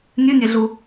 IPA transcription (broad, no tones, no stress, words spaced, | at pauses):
nʲɨnʲɛɮu